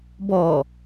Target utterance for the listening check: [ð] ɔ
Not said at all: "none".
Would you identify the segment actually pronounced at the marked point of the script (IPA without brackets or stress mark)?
b